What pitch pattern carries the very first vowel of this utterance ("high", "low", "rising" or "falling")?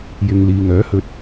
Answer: low